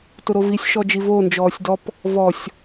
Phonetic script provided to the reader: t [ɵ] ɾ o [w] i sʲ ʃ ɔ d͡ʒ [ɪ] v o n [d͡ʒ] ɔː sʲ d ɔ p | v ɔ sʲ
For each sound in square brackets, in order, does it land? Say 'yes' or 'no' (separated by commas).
no, no, no, yes